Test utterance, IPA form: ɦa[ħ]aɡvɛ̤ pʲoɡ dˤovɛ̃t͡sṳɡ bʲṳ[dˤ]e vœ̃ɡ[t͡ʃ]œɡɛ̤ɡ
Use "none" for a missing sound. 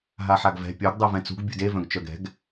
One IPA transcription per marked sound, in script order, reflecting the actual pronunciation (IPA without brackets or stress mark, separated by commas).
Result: ħ, d, t͡ʃ